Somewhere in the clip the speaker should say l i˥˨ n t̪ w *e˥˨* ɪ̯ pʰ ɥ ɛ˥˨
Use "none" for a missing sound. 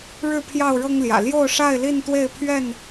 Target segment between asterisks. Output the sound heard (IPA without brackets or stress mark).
e˥˨